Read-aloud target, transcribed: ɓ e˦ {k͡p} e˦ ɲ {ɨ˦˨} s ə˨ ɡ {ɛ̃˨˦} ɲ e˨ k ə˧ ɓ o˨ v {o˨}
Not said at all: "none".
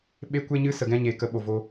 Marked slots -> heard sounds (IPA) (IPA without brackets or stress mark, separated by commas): kʷ, ɨ˦, ɛ̃˦, o˧